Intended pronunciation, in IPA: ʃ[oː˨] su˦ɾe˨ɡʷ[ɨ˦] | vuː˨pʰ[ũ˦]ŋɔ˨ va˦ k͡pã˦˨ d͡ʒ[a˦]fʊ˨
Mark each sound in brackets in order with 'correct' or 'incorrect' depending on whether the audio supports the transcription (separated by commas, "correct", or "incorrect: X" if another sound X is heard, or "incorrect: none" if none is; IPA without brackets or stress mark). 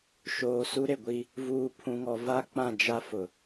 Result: correct, incorrect: i˦, incorrect: ũ˨, correct